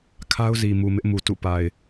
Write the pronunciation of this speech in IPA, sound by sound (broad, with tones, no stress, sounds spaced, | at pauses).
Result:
kʰ a˦ ʊ̯ z i˨ m u˨ m ɪ˦ ʔ m u˨ t ṵ˦˨ p a˨ ɪ̯